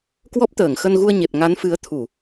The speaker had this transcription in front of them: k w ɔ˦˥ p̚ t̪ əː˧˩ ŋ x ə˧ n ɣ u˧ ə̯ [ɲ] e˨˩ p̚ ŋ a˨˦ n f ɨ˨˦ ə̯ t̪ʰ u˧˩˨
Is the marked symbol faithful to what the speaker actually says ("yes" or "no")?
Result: yes